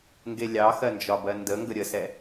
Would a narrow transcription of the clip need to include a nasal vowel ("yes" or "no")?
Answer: no